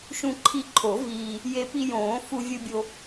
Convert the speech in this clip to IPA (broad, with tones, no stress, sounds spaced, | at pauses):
ʃ ũ˧ ǃʰ i˧ ǃʰ o˨˩˦ v iː˧ | j e˧ p i˧ j õː˨˩˦ f u˧ vʲ ɯ˧ bʲ o˧